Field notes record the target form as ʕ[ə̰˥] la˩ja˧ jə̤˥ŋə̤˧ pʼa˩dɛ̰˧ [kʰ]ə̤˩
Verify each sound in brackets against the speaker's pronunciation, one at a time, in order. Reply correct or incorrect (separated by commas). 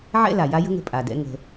incorrect, incorrect